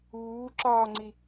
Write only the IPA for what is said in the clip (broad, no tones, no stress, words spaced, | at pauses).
uː ǁɒːŋ͡ǀi